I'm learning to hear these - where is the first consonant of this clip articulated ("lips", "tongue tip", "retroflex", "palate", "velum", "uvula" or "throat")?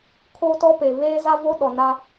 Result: velum